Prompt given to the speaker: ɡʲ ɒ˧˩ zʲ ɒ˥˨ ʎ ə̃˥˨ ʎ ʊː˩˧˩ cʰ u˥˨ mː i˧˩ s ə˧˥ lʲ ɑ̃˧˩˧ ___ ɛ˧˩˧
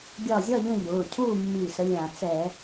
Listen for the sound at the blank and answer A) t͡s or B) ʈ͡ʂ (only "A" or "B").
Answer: A